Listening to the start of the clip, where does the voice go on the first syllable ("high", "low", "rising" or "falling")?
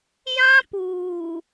high